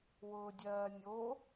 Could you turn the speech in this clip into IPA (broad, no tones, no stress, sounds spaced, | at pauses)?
w ʊː dʲ ɜː nʲ o